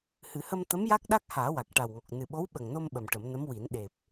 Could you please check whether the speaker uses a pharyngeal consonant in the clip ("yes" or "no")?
no